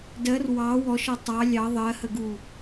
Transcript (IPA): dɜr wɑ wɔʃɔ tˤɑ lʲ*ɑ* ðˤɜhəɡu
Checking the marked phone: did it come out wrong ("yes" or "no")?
no